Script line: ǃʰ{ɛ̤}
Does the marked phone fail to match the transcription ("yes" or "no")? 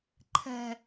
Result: no